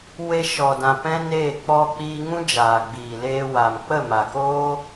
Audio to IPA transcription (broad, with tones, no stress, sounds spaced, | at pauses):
w e˧ ʃ ɔ˨ d ã˨ p ɛ̃˦ n eː˦˨ k͡p ɔ˧ k͡p iː˧ ŋ ũ˦ d͡ʒ aː˨ ɡ͡b iː˨ l eː˧ w a˨ m k͡p ə˦˨ m a˨ k oː˦